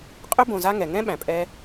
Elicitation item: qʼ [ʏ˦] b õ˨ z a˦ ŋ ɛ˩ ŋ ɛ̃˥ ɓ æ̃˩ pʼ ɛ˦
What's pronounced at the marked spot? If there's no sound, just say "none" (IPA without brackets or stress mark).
ʏ˦